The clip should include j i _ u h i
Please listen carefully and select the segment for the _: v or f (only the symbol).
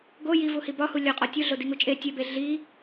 v